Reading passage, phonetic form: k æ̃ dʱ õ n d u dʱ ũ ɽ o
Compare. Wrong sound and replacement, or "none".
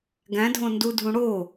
k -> ɡ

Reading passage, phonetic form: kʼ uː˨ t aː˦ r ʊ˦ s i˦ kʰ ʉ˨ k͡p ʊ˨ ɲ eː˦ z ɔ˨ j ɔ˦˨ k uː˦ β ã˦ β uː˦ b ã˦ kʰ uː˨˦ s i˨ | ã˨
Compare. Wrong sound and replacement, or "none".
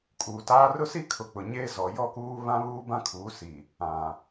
ʉ˨ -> ʊ˨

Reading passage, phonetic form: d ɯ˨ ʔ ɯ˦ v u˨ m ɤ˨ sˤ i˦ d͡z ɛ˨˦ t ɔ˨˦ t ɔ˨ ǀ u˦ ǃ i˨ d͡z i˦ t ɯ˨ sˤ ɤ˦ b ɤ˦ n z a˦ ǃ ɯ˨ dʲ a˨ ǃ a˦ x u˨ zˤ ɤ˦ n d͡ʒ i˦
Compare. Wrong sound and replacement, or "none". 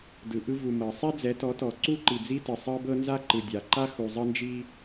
none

